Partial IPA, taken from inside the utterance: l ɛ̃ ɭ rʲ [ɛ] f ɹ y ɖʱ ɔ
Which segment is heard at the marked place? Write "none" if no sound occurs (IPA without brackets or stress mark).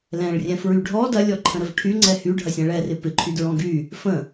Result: ɛ̃